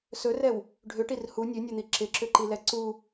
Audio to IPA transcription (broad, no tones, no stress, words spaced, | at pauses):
sɵrɛw | ɖʱʏʈir hu nʲʉnʲɛn̪i ǁɪǁʏǃilɛ ǀu